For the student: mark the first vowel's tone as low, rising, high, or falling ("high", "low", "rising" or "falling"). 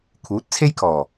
rising